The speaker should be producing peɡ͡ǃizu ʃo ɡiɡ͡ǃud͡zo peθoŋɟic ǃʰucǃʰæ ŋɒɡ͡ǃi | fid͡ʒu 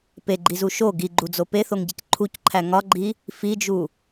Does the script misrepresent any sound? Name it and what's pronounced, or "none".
none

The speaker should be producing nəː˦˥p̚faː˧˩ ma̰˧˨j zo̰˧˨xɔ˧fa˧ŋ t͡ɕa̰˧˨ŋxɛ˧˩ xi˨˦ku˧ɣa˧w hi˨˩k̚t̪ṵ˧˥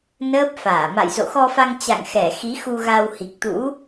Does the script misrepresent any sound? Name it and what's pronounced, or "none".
k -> x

